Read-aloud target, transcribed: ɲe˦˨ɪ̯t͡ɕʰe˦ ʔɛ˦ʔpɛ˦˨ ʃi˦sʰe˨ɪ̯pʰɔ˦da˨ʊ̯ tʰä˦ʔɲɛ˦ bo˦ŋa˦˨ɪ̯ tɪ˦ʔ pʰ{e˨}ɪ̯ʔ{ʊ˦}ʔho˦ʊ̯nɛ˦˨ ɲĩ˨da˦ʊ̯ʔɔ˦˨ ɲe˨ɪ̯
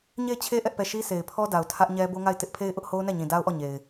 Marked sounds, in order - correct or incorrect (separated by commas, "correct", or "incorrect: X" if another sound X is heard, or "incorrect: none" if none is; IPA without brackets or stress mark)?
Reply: incorrect: e˦, correct